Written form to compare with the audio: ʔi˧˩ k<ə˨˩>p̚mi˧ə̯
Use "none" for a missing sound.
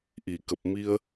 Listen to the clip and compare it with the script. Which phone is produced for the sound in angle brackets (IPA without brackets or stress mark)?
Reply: ə˨˩